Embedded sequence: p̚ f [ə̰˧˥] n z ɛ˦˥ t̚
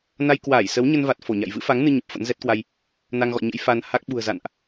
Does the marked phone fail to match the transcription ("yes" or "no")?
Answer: no